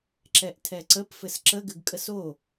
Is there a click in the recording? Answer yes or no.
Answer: yes